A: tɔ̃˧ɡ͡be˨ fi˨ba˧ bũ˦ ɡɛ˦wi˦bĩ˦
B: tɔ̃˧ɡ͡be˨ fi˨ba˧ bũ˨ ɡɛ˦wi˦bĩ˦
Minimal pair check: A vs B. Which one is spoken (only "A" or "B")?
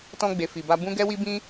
A